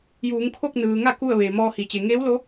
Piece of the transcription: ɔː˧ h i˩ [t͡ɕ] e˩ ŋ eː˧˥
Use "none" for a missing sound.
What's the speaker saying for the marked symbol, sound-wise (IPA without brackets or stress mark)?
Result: t͡ɕ